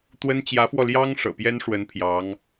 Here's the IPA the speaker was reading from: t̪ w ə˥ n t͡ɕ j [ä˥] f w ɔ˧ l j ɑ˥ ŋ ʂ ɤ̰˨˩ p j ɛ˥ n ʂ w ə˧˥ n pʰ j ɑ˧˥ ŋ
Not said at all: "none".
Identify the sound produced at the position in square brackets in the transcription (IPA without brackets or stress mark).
ä˧˥